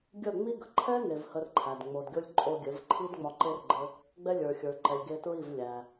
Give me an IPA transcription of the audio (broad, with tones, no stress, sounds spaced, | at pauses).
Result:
ɡʲ ə˦˨ ŋ͡m i˦ ɡ ə˨ ǃʰ ɛ˦ ŋ e˨ v h ə˧ r ǃʰ æ˨ d ŋ͡m o˨ d ɡʲ o˧ lʲ ǃʼ o˧ ɡʲ ɘ˨˦ v ǃʰ i˦ d ŋ͡m ɒ˧ ǃ e˦ r ɡ͡ǃ ɘ˦ | ɡ͡b ɛ˧ lʲ ə˞˨ xʲ ə˞˨ ǃ ɛ˨ lʲ ɡ e˧ t ɹ i˦˨ v lʲ æ˧